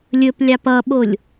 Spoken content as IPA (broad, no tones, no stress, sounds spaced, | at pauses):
lʲ ɵ p lʲ ɑ p ʌ ɓ o lʲ